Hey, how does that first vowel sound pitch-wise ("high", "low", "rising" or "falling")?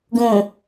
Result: low